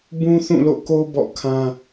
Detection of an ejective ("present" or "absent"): absent